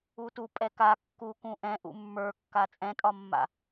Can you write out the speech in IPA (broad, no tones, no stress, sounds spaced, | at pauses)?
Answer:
u t u pʼ ɛ k a kː u k ũ ʔ ɛ̃ ʔ ṵ mː ə˞ kː a t͡sʼ ɛ̃ tʼ ɒ mː a̰